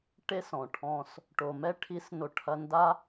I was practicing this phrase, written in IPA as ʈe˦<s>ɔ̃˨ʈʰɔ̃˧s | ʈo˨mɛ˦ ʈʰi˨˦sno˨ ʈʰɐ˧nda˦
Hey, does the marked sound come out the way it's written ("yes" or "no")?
yes